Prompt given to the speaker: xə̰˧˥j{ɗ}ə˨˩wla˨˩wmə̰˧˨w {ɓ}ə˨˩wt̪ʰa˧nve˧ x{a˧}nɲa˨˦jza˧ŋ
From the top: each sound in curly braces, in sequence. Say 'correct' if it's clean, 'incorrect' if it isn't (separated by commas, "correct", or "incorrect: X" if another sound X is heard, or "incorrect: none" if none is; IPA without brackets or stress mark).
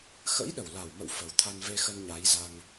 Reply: correct, incorrect: f, incorrect: ə˧